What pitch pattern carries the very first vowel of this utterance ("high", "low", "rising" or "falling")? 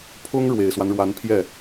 high